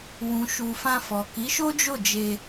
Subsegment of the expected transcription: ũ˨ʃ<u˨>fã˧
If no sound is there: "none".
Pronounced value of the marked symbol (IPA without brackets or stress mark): u˨